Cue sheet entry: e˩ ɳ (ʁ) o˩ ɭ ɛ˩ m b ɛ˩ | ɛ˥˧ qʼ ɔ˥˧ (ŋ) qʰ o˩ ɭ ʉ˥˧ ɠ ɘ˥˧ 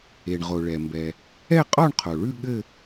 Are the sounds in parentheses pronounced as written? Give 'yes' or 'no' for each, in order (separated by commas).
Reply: yes, no